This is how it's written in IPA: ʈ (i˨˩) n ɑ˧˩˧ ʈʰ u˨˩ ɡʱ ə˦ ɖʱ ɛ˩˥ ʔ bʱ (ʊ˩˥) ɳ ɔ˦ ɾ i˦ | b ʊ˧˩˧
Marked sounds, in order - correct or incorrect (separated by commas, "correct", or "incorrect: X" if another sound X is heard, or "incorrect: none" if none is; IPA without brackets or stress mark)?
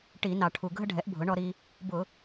incorrect: i˧˩˧, correct